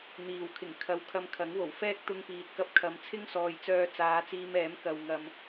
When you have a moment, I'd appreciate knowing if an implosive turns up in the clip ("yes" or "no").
no